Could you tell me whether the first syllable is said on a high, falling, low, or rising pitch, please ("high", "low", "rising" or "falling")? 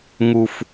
low